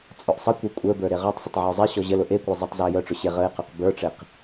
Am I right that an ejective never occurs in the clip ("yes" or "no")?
no